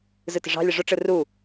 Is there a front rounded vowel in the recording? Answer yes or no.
no